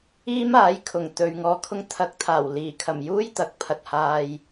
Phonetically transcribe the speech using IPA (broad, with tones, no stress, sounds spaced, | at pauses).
iː˥ m aː˨˥ j kʰ ʊ˨˩ ŋ t̪ ɵ˨ ɥ ŋ ɔː˧ kʰ ʊ˥ ŋ t̪ʰ ɐ˧ k̚ t̪ʰ aː˨˩ w l iː˨˩ kʰ ɐ˨˩ m j uː˥ j t̪ ɐ˨˥ k̚ pʰ ɐ˨ t̚ h aː˨ j